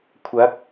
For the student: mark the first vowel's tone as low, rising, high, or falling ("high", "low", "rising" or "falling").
rising